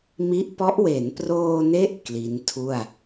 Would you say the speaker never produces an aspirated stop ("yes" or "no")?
no